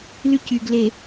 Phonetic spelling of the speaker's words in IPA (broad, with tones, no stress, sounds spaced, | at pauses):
l y˦ c y˨ ɡ l e˨